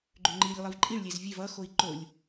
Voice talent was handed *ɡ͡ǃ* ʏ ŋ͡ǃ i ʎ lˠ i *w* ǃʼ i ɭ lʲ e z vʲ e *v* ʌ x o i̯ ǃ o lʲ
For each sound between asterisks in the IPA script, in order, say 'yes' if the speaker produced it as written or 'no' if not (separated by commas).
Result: yes, no, yes